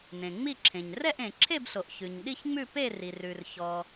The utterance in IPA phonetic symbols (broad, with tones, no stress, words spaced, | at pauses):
nẽ˩ŋ͡mi˥˧ǁʰẽ˩ɲ rɛ˥˧ʔẽ˩ǁʰe˥˧bɬo˩ʔ çʉ˩ɲ ɗi˥˧çŋ͡mʉ˥˧pe˥˧ri˩ rʉ˩rçɔ˩